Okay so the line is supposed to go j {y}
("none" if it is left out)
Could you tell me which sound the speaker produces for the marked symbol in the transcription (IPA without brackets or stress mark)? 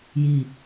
i